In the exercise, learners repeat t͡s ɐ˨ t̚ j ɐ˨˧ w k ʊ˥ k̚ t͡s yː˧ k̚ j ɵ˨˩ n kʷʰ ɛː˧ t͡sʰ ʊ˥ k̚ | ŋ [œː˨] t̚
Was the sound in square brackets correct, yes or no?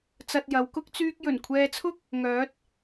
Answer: no